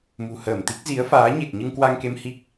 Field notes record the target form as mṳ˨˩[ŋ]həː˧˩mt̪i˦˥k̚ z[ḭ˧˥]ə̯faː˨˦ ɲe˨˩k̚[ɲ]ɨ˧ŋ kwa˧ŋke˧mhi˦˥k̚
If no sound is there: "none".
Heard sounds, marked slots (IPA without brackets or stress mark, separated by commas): none, i˨˦, ɲ